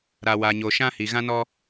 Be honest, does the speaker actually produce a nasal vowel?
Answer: yes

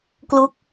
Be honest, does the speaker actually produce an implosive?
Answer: no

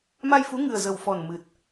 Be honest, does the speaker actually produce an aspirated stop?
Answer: no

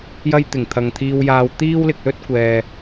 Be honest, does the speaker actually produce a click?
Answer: no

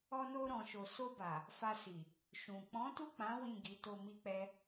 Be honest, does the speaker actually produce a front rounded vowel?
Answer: no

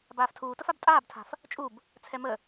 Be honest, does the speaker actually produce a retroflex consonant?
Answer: no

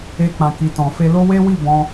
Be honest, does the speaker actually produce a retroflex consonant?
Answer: no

